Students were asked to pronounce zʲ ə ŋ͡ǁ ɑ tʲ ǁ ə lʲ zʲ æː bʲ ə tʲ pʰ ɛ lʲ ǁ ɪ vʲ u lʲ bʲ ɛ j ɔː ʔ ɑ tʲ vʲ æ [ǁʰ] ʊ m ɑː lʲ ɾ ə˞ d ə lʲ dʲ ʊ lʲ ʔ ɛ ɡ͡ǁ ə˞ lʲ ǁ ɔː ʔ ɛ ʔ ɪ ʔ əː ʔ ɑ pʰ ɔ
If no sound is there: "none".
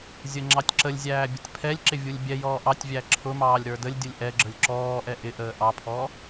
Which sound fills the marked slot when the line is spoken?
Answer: ǁʰ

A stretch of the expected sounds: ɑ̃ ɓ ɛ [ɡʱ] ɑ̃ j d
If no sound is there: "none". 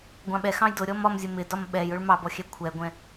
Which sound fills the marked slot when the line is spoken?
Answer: x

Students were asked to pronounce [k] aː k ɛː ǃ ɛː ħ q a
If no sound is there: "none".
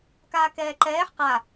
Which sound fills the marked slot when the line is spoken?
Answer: k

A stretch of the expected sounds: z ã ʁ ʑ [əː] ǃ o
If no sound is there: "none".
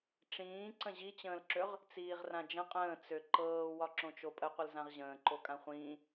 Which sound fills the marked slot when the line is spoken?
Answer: ə̃ː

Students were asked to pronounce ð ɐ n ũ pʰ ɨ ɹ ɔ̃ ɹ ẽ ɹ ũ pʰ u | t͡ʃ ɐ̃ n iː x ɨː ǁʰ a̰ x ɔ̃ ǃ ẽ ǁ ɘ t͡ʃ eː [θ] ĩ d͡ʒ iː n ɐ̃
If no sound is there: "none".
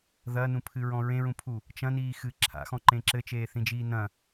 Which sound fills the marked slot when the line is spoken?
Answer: θ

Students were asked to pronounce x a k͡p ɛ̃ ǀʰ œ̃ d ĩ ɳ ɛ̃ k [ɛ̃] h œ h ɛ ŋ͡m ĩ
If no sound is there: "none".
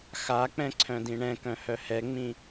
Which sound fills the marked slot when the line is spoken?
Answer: œ̃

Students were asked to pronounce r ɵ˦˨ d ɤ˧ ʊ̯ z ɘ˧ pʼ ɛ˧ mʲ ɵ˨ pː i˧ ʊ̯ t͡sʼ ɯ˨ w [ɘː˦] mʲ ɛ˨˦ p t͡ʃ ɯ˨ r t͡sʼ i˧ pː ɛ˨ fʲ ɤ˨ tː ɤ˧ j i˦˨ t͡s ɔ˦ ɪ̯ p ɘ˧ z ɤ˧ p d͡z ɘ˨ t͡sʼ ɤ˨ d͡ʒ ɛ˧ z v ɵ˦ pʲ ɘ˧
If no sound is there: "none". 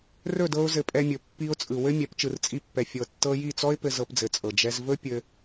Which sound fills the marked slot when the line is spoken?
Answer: ɘ˦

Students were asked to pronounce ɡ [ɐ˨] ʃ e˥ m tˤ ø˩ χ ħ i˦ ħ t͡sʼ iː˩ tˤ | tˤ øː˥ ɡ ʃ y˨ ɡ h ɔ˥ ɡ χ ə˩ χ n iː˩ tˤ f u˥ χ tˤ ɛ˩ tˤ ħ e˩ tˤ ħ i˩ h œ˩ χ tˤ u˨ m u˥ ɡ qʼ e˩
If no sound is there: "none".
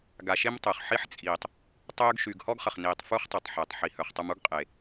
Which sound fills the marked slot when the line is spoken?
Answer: a˨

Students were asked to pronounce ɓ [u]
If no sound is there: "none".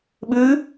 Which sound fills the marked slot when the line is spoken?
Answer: ʉ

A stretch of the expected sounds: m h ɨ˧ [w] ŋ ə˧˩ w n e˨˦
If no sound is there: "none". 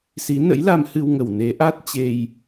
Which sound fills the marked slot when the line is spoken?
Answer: w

